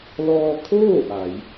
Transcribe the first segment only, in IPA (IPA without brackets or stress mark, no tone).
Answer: l